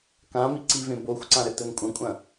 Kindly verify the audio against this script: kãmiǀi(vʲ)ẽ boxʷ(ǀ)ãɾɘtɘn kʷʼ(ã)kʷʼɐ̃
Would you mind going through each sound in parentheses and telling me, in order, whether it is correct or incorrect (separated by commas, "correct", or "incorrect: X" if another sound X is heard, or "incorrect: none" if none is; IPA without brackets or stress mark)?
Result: incorrect: v, correct, incorrect: ɐ̃